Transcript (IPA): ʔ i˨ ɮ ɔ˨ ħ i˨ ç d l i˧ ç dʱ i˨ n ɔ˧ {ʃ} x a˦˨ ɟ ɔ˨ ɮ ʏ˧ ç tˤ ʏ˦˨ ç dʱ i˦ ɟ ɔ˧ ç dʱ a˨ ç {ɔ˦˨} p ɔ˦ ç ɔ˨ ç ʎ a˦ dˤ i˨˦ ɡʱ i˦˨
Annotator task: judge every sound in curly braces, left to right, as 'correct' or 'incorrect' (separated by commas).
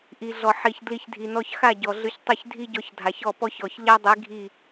incorrect, correct